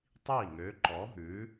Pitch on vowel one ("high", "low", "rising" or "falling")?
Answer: falling